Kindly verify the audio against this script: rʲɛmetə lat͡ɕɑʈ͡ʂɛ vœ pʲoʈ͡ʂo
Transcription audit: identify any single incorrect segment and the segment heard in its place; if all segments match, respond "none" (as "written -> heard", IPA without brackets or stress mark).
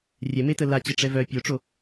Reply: ɑ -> ə